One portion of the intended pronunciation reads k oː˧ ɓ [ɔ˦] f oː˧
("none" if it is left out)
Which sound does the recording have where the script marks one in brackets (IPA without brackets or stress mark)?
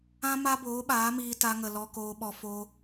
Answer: ɔ˧